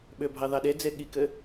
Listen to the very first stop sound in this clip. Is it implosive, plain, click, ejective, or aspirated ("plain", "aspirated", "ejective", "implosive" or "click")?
implosive